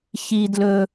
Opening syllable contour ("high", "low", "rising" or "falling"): high